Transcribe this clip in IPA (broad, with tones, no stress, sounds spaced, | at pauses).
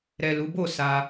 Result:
ɾ ɛ˨ l u˨˦ b o˦˨ s a˧